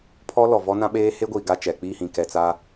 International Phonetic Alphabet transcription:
pʰ ɔ˦ l ɔ˨ v ɔ˦ n ã˦ ɓ eː˦ h e˦ ɡʷ iː˨ ɡ a˦˨ t͡ʃ ɛ˨ k͡p i˦˨ h ĩ˨ k ɛ˨ t͡s a˦

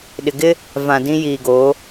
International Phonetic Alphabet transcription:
ɗ ɪ˨ ɡ ɪ˦ | v ã˨ d ĩ˦ j iː˨ ɡ oː˨˦

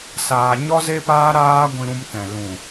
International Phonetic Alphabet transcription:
s aː˧ ɲ ɔ˦ z e˦ p aː˦ ɾ aː˦ ɡʷ ĩ˧ ɾ ũ˧ m t ɛ̃˨ l ũ˨

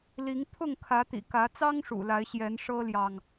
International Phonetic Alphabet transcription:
l i˨˦ ŋ t̪ʰ ʊ˥˨ ŋ kʰ ä˨˦ t̪ ḭ˨˩ k ä˨˦ t͡s ɑ˦ ŋ ʂ ṵ˨˩ l a˨˦ ɪ̯ ɕ j ɛ˨˦ n ʂ ɤ˦ l j ɑ˨ ŋ

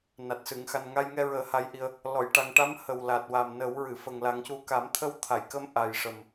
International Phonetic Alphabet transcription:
n a˨˩ t̚ s ɨ˨˩˨ ŋ x a˨˩ n ŋ a˧ j ŋ ɛ˧ ɹ əː˨˩˦ h a˧˥ j ʔ i˧ ə̯ | l ɔ˨˩˨ j ʈ a˨˩ ŋ ʈ a˧˥ m h ə˨˩ w l a˨˩ t̚ w a˨˩ m n ə˨˩˦ w ɹ ɨ˨˩˨ f ə˨˩ ŋ l a˨˩˦ ŋ c u˧ k a˨˩˦ m t̪ʰ ə˧˥ w t̪ʰ a˨˩˨ j k ə˧˥ m ʔ a˨˩ j ʂ ə˨˩ m

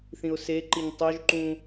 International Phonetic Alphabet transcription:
θ ĩ ʊ̯ s e ǃ i ɲ tˤ o ʒ ǃ ũ

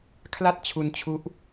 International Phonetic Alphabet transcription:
kʰ l a˥˩ t̚ t͡ɕʰ u˧ n t͡ɕʰ u˦˥ ʔ

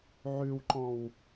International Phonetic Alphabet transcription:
ʕ ʉ w ǃ ɔ̃ w

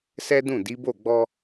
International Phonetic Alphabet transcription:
s ɛ˦ d ũ˦˨ d i˨˦ b o˦˨ ɡ͡b ɔ˧

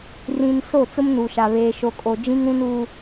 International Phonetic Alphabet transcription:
r ĩ˨ n s o˦˨ t͡s ʊ˦ m n u˨ ʃ a˨ β eː˨ ʃ o˨ kʼ o˨ d͡ʒ ĩ˦ ŋ ɾ ũ˦ n u˦

